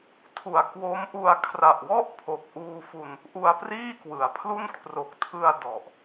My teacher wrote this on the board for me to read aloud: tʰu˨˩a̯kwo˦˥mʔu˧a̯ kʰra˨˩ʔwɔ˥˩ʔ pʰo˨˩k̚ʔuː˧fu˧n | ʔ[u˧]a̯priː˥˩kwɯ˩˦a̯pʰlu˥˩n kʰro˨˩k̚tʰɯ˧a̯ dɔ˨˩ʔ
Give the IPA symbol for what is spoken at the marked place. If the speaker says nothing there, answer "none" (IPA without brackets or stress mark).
u˧